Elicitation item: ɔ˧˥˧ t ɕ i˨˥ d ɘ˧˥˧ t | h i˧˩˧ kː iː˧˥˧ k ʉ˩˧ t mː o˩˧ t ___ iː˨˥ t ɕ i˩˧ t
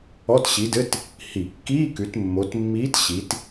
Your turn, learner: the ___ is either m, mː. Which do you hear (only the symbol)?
mː